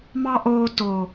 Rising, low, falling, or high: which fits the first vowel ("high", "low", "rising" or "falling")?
high